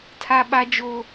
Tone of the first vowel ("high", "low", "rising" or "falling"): high